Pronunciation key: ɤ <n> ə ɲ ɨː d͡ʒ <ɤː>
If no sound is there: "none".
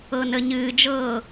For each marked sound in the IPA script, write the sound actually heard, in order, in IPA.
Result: n, ɤː

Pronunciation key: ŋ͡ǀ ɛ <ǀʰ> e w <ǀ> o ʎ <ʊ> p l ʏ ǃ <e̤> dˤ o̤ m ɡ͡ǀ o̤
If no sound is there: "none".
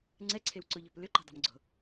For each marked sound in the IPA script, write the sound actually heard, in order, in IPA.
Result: ǀʰ, ǀ, ɔ, e̤

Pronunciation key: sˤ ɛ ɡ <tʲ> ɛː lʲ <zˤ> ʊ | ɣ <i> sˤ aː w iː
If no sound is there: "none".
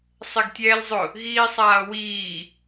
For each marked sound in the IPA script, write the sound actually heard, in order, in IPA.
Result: tʲ, zˤ, iː

